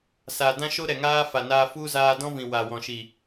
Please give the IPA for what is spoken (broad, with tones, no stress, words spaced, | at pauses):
sa˨dã˦ʃo˦ ɾɛ˨ŋaː˦fa˨naː˧ fu˦ zaː˧dɔ̃˦vĩ˨ wa˨wɔ̃˨ʃi˨